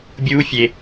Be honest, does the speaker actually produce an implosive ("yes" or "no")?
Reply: no